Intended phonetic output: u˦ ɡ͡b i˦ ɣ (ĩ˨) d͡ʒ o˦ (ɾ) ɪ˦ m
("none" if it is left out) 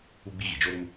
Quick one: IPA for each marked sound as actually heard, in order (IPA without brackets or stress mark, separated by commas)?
i˨, ɾ